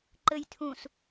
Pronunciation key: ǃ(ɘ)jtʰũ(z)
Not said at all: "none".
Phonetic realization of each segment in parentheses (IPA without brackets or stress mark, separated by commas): ɘ, s